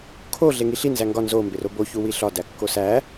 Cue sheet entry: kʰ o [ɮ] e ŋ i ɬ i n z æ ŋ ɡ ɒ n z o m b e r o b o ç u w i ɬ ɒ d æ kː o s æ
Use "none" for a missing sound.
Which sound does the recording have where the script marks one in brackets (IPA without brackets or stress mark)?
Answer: ɮ